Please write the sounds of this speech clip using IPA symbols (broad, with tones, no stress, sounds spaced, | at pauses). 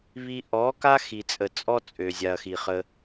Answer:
β i˧ ʔ ɔ˨˦ k a˦ x i˨ t͡sʼ ə˨ t͡sʼ ɔ˦ t͡sʼ ø˨ zʲ a˨ ɐ̯ x i˨ χ ə˧